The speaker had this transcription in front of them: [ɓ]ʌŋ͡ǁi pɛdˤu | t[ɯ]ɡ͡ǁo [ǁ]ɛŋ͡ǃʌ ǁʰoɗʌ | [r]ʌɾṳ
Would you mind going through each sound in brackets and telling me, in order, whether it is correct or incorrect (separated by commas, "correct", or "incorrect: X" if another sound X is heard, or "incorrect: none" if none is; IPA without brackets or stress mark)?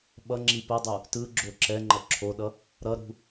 correct, correct, correct, incorrect: ɾ